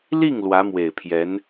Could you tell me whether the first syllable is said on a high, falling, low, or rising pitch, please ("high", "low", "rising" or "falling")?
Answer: falling